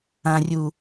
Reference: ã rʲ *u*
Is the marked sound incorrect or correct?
correct